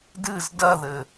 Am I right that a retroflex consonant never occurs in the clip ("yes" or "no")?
yes